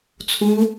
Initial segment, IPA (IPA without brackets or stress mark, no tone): t͡sʰ